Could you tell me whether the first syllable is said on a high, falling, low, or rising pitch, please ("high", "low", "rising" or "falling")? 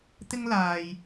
high